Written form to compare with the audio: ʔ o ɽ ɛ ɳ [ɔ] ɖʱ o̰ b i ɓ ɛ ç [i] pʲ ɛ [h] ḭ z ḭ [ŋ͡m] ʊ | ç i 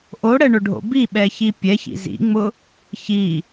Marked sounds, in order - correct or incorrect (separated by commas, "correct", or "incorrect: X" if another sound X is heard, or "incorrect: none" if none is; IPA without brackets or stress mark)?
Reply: incorrect: ʊ, correct, incorrect: ç, correct